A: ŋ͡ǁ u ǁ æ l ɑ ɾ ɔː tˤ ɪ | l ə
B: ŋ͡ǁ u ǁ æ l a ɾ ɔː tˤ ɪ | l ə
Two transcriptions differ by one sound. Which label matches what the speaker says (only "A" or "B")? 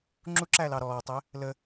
A